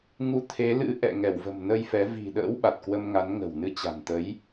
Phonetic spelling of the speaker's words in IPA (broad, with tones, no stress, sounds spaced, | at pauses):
ŋ u˨˦ t̪ʰ e˨˦ l ɨ̰˧˥ ʔ ɛ̰˧˨ ŋ ɛ˧˩ w v ə̤˨˩ m n ə˧ j f ɛ˨˦ v i̤˨˩ ɗ ə̰ː˧˥ w ɓ a˨˩ t̚ k w ə˧ m ŋ a˨˦ n ŋ ə̤˨˩ w n ɨ˧ t͡ɕ a̤˨˩ n t̪ ə˨˦ j